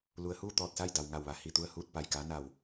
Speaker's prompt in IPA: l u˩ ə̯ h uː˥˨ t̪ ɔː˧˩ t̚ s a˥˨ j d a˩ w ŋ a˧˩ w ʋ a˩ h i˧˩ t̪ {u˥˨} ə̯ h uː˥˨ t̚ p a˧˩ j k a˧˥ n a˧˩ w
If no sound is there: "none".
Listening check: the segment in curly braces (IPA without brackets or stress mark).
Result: u˥˨